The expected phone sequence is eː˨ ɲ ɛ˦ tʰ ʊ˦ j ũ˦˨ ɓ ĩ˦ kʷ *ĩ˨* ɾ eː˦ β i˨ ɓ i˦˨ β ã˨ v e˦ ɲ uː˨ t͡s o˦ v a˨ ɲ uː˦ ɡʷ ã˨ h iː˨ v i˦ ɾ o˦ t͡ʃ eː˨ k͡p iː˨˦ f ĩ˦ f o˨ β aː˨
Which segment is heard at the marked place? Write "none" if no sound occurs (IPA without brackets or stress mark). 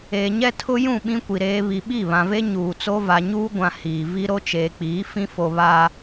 i˨